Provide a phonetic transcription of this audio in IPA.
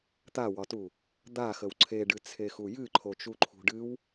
t̪ a w ɒ t u | d̪ a x ə w ǀʰ e ɖ ɨ t͡sʰ e x u j ɨ ǃʰ o t͡ʃ u ǃʰ ṳ ɖ ɨ w

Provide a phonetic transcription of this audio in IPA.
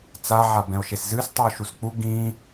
t͡s a ʕ a b ɛ̃ o̯ ʃ e s z ɨ s tˤ u o̯ ʃ u s k͡p u ɡ ĩ

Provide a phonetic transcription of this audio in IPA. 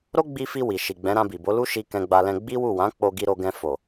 ɾ o˦ ɡ͡b i˧ f i˧ w i˨ ʃ i˨ ɡ͡b ɛ̃˨˦ ɾ ã˧ b i˨ b o˨˦ l u˦ ʃ i˧ k ɛ̃˧ ɡ͡b a˧ l ɛ̃˧ ɡ͡b i˦ w u˦˨ w ã˨˦ k͡p o˧ ɡ i˧ ɾ o˧ ɡ ɛ̃˧ f o˨

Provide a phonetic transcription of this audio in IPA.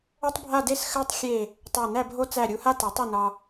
o˥ tˤ bʱ a˥˧ d e˥˧ s x ɜ˥ tˤ xʲ e˧˩ | tˤ æ˧˩ n æ˥˧ bʱ o˥ t͡s æ˧˩ ɾʲ u˧ h a˥ t a˩˧ tˤ i˧˩ n ɒ˧

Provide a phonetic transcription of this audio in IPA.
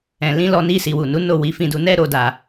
ɛ̃˨ l ĩ˧ l ɔ˧ n i˧ s i˨ w u˨ n u˨˦ n o˦˨ w i˨˦ f ĩ˧ d u˧ n ɛ˧ ɾ o˨ d a˨

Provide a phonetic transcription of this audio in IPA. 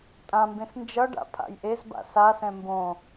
tʼ ã m b ẽ s n d͡ʒ ʌ ɖ a̰ pʰ a̰ j ʔ e z b a̰ s a s ɛ̃ m b õ

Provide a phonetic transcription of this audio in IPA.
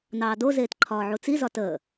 n ɑː d o z eː t ǃʰ ɒː ʕ u t͡s i z ɒ t əː

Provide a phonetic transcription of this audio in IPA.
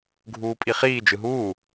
ɡʱ uː pʼ i χ iː d͡ʒ ɯ ɦ uː

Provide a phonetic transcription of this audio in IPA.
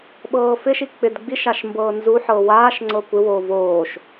ɓ ɤː f ɪ ʃ i k͡p ɪ d ɡ͡b i ʃ a ʃ m b ɤː n z u ħ ɤː w aː ʃ ŋ͡ǀ ɤ kʷ ɪ w oː v oː ʃ

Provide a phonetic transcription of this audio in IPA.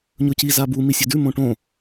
ɲ ɵ c i z a b u m i sʲ ɵ d ʉ m õ ʈ õ

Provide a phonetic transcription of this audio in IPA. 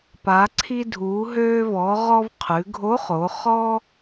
p a˩˧ ǀʰ i˧ dʱ uː˩˧ ɦ øː˧ v ɔ˩˧ ʁ ɔ˧ v qʰ ʉ˩˧ ɡʱ o˧˥ χ o˩˧ χ ɔ˥

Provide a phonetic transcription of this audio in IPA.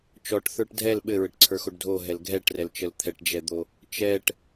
t͡ʃ ɔ ʈ θ ə˞ ʈ dʱ ɛ l ɓ ɘ ɹ ɘ ʈ ǀʰ ə˞ x o ɖ dʱ o ɦ ɛ l ɡʱ ɛ ʈ r ɛ l t͡ʃ ə l t̪ʰ ɛ ʈ d͡ʒ ɛ d̪ o | t͡ʃ ɛ ʈ

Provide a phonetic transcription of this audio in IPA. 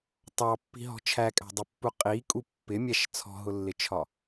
tˤ ɑ pː i̤ ɦ ɔ̤ t͡ʃʰ æ kʼ æ̤ dˤ u pː u qʼ i kʼ u pː ɪ mʲ æ ʃ t͡sʰ ɔ̤ ɦ ʊ lː ɪ t͡ʃʰ ɒ

